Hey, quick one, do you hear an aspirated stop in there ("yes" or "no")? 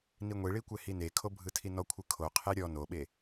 yes